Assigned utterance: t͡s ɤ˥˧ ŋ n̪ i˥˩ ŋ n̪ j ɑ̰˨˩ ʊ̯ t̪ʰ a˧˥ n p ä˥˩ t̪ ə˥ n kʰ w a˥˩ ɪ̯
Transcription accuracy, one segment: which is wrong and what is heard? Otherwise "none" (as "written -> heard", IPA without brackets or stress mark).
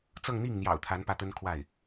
none